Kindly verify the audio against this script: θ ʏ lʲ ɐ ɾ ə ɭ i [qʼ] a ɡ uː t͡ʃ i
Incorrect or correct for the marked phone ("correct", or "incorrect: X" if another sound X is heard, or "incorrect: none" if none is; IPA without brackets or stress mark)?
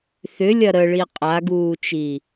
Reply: correct